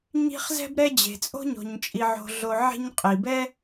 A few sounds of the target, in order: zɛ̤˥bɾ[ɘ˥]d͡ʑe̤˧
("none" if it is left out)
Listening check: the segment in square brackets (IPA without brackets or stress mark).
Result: ɛ˥